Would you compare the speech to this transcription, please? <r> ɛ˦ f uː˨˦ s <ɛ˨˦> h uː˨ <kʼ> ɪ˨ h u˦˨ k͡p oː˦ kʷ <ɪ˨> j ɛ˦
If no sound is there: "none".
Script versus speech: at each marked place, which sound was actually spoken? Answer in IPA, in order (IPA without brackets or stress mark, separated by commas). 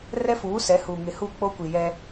r, ɛ˨˦, ŋ, i˨